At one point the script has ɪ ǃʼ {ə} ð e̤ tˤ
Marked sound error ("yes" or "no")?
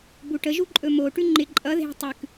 yes